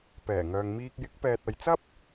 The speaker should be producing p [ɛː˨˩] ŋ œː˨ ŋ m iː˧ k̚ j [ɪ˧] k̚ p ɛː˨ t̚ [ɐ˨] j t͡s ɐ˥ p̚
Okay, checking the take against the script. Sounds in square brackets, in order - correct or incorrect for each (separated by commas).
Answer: correct, incorrect, correct